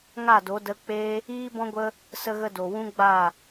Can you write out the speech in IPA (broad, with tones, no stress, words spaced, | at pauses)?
ŋa˦˨do˨˦ də˧k͡pe˦ | iː˦bɔ̃˦ɡʷə˦ | sə˦ɣə˦do˨ wũ˦ɡ͡ba˦˨